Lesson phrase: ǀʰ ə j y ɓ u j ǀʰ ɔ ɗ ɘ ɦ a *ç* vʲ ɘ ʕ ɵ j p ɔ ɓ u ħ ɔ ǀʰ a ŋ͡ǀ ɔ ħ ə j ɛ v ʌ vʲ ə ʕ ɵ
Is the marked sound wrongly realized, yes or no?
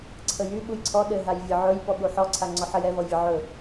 yes